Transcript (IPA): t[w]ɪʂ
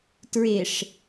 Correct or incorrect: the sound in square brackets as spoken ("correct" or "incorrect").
incorrect